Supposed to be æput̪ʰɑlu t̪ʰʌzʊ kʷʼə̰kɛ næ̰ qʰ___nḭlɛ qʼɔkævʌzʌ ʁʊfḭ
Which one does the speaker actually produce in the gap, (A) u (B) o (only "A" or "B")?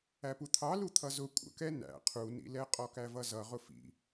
A